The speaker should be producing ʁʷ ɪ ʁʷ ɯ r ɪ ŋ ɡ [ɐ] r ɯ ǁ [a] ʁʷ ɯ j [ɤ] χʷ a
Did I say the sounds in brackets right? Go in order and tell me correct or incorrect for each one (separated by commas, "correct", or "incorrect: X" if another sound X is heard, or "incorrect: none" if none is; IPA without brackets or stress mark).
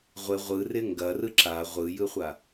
correct, correct, incorrect: ɯ